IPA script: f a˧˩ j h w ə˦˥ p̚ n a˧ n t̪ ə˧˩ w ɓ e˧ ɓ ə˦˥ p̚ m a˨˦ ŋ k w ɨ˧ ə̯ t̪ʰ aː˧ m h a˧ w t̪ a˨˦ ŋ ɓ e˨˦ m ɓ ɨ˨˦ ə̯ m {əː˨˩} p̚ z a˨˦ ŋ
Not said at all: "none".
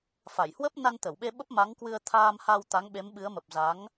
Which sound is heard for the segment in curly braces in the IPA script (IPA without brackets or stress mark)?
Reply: ə˨˩